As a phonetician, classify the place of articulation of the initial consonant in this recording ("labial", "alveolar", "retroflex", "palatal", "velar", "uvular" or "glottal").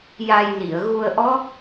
palatal